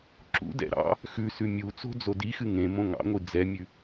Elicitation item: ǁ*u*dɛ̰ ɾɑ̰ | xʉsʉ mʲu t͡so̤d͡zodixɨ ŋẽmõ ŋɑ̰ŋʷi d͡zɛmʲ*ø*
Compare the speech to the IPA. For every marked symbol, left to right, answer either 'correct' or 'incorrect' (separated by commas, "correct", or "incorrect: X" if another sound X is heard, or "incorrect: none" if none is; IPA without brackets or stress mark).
incorrect: ṵ, incorrect: ʉ